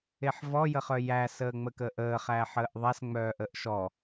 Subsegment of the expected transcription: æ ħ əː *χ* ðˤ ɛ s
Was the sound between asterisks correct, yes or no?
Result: no